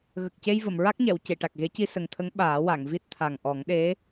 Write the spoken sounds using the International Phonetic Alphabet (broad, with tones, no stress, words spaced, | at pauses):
ɣə˨˩k̚ce˧jvə˨˩˨m ɹa˦˥k̚ɲɛ˨˩˨w ce˨˩˨ʈa˨˩k̚ɣe˧˥ci˧ sə˨˩ŋt̪ʰə˧˥ŋ ɓaː˨˩˦wa˨˩˨ŋvi˦˥t̚ t̪ʰa˨˩ŋʔɔ˨˩˦ŋɗe˧˥